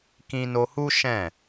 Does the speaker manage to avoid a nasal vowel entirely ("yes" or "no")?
no